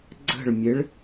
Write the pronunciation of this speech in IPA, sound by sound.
ɡ͡ǀ ə̤ ɭ mʲ e ɭ

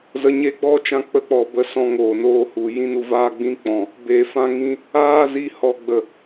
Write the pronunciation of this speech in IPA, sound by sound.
z ə˧ ɲ e˦ ɡ͡b ɔ˦ t͡ʃ ã˧ k͡p ə˧ k͡p ɔ˨ b ə˨˦ s ɔ̃˧ ŋ oː˨ n oː˧ h u˨ j ĩ˦ n u˧ v aː˦ ɡ͡b ĩ˦ k͡p ɔ̃˨ | b e˨ f ã˧ ŋ ĩ˧ | aː˦ z i˧ h ɔ˨ ɡ͡b ə˨

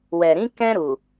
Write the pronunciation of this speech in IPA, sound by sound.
w ɛ˨ ɾ ĩ˨˦ k ɛ̃˧ ɾ u˨

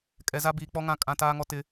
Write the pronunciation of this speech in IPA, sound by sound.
kʼ ɛ˨ z a˦ b iː˨ k͡p ɔ˦ ŋ ã˦˨ kʼ ã˨ t aː˦ ŋ ɔ˦ t ɪ˦

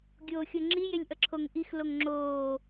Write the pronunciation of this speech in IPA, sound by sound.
ɡʲ oː xʲ o ŋ͡ǁ i j e lʲ ʔ ʌ ǁʰ o ŋ ʔ i x l o ŋ ŋ͡ǁ oː

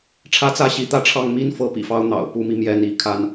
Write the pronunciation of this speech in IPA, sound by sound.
ʈ͡ʂʰ ä˦ t͡s ä˦ ɕ i˨˦ t̪ ä˥˨ ʈ͡ʂʰ ɑ˥˨ ŋ m i˦ n f ɤ˦ p ḭ˨˩ f ɑ˦ ʊ̯ n̪ ɑ̰˨˩ ʊ̯ p u˨˦ m i˧ m j ɛ˥˨ n i˥˨ kʰ a˦ n

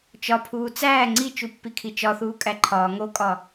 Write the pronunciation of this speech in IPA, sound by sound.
t͡ʃ ɒ pʰ uː t͡s æː ŋ͡ǀ i t͡ʃ u pː i kʰ i t͡ʃ ɒ θ uː kʼ æ ǃʰ ɒː ŋ o kʼ ɒ

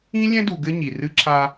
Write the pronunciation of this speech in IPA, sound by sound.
ĩ˦ lʲ ɛ̃˦ d u˨ ɡ ɘ˦ ɲ i˨ r ɨ˦ ǁʰ a˦

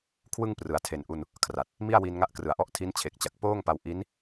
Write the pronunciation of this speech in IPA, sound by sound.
kʰ w ɯ˥˩ ŋ p r ɯ˩˦ a̯ tʰ e˨˩ n ʔ u˧ n | kʰ r a˨˩ t̚ | m i˥˩ a̯ w i˧ n ŋ a˦˥ ʔ k r ɯ˨˩ a̯ ʔ ɔ˦˥ ʔ tʰ i˦˥ n t͡ɕʰ e˨˩ k̚ t͡ɕ a˨˩ k̚ p oː˥˩ ŋ p a˧ w ʔ i˦˥ n

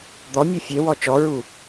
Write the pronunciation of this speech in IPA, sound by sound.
d̪ ɔ mʲ o fʲ e w ɔ t͡ʃ ɔ ɹ u

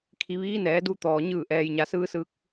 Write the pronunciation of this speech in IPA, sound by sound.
kʰ i˩˧ ʋ iː˧˥ n ɛː˩˧ d u˧ t̪ ɔː˩ ɲ ɯː˧˩ ʔ ɛː˩ j ɲ a˩˧ s ɯː˧ s ɯː˧ k̚

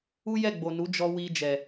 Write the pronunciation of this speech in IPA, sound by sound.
u˦ j ɛ˦˨ ɡ͡b o˨ n u˨˦ d͡ʒ ɔ˧ w i˧ d͡ʒ ɛ˨

